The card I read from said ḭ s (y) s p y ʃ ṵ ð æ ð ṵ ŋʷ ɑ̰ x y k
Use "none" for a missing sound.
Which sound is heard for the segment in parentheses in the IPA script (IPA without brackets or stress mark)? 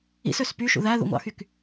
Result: ø